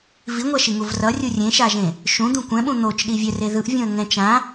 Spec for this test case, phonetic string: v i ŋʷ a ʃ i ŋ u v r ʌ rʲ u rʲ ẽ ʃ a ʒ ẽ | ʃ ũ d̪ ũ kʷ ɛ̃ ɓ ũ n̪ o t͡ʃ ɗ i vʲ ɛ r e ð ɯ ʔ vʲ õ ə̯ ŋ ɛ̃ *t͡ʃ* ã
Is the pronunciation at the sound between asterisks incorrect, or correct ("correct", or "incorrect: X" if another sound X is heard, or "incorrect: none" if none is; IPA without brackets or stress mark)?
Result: correct